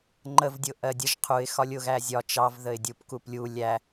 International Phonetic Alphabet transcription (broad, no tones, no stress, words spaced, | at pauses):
ŋ͡ǃəvdʲʊ ʔɜdʲəʒ qʰuɪ̯xɒlʲ ʊɣæzʲɒ t͡ʃɑvðəɪ̯dʲup kuplʲu lʲæ